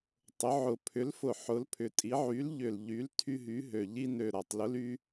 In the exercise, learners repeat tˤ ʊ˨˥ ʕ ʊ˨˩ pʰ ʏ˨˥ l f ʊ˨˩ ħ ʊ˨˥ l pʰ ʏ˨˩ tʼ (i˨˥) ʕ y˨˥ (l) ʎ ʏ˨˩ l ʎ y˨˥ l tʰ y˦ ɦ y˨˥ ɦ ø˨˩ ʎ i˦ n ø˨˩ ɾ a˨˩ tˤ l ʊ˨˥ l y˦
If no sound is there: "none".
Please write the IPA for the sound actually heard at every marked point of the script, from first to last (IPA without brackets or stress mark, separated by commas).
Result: i˨˥, l